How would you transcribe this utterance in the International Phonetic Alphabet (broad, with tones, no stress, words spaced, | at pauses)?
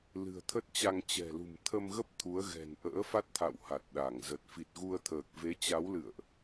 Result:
lɨ̤˨˩ə̯t̪ʰə˦˥t̚t͡ɕa˧ŋ t͡ɕɛ̤˨˩lṳ˨˩mt̪ʰə˧mɣə˦˥p̚ t̪ʰu˨˦ə̯ɣɛ̤˨˩n ʔə̰ː˧˥fa˦˥t̚t̪ʰa̰˧˨w ha˨˩t̚ɗa˧˩ŋ zə˨˩t̚ fi˨˩t̚ɣu˧ə̯t̪ʰəː˨˩k̚ ve˨˦t͡ɕa˨˦wlɨ̰˧˨ə̯ʔ